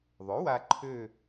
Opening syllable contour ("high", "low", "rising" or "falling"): rising